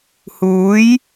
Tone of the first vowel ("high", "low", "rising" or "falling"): rising